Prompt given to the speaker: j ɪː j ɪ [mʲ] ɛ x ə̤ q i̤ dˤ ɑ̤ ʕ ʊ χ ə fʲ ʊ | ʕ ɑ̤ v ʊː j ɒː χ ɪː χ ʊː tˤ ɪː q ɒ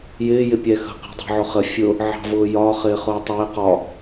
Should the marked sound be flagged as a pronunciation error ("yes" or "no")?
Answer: yes